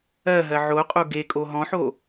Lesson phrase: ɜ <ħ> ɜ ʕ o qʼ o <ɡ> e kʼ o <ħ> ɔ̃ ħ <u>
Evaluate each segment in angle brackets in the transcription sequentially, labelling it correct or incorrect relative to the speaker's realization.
incorrect, correct, incorrect, incorrect

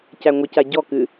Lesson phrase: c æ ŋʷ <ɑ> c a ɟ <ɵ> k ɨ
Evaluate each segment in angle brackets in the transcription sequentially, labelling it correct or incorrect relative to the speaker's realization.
incorrect, incorrect

